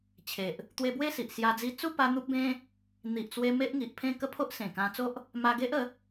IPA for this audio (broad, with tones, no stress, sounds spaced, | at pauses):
t͡ɕʰ e˨ ʔ | t̪ w e˧ b w e˥˧ s i˨ ʔ s j a˧ d͡z i˧ t͡s u˥˧ p a˧ n̪ u˦ p̚ b ẽ˦ | n̪ i˨ ʔ t͡s w e˧ m e˦ ʔ ŋ i˨ ʔ pʰ ẽ˥˧ k ə˥˧ pʰ o˦ ʔ s ẽ˨˩ k ã˧ t͡s o˦ ʔ | m a˧ ɡ e˦ ʔ ə˨˦